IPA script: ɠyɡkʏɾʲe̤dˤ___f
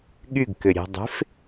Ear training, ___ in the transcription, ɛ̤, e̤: e̤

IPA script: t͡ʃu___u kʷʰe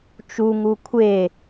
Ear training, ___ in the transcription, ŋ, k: ŋ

